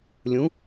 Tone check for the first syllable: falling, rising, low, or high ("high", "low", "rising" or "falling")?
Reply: rising